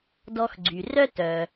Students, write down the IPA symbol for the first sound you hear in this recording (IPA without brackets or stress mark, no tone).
d